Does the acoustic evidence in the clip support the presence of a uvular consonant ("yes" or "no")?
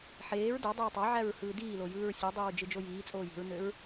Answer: no